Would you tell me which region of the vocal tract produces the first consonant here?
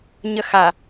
palate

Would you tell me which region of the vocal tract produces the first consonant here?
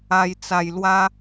palate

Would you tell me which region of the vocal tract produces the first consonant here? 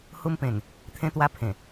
throat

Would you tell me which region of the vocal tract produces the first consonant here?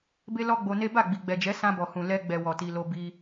lips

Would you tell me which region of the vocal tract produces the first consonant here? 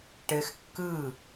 retroflex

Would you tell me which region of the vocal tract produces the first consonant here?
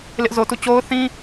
tongue tip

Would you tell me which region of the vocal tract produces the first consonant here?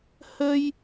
throat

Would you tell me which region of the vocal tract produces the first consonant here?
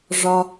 retroflex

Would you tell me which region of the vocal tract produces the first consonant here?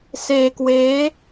tongue tip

